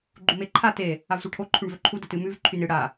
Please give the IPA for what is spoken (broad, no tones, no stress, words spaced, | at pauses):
ɡ͡ǃumeǃʰa te | avsʷaʈʰo ǃʰʉɳvɵǃʰu dətɨmʉv ǃʰynɨ ɽa